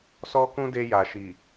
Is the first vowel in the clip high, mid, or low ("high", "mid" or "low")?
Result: mid